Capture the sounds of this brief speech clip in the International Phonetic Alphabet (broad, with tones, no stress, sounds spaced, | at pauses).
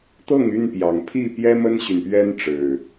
t̪ ɤ˥˨ ŋ y˥˨ n p j ɑ˨˩ ŋ pʰ i˥˨ p j ɛ˦ m ə˦ n ɕ y˨ n p ɥ ɛ˦ n ʈ͡ʂ ɻ̩˨˩